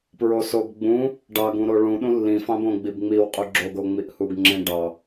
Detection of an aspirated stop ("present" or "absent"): absent